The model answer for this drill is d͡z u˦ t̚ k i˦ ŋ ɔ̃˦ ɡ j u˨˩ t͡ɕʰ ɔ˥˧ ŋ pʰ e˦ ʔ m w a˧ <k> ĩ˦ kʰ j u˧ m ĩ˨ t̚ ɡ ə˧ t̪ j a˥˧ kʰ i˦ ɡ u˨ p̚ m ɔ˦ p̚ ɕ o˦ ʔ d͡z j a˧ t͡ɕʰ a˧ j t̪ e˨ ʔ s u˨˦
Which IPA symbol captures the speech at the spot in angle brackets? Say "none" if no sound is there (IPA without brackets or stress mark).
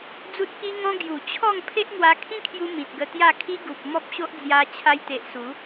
kʰ